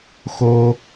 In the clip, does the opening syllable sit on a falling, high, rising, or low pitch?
high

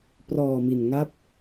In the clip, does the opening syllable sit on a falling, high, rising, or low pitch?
low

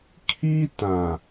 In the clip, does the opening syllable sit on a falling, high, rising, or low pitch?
high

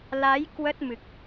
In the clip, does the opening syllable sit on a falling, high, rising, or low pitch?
rising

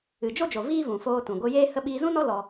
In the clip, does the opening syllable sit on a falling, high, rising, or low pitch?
low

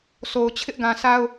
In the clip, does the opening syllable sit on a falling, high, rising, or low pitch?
low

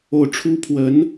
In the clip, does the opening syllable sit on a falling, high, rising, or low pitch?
falling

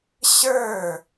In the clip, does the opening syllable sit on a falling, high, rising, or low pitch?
falling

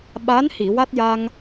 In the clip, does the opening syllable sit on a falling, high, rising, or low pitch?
rising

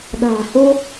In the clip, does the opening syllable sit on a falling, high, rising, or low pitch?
low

